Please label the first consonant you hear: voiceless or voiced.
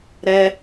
voiced